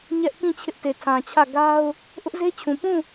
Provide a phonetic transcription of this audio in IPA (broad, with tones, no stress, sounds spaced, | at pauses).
ɲ ɛ˦ ʔ k ĩ˦˨ t͡ɕʰ ɪ˦ ʔ t e˨ tʰ ã˨ t͡ɕʰ ä˦˨ ɡ a˦ ʊ̯ | ʔ ʊ˦ ʔ z e˦ t͡ɕʰ ũ˨ p ũ˦˨